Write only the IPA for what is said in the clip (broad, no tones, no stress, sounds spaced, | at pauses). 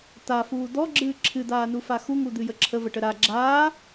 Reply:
t̪ a f uː d̪ ɔ ɡ͡ǁ ɨː ǁʰ ɨ d̪ aː n u f a x u ŋ u d̪ ɨ j ə ǁʰ ə v ə ʈ ə ɾ a ɡ͡ǁ aː